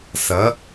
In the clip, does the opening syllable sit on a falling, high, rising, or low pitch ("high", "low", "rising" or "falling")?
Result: rising